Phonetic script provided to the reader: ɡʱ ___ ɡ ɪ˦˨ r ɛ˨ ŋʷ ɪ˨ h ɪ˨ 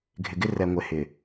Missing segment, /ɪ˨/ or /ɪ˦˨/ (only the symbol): ɪ˨